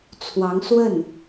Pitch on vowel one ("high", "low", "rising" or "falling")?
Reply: rising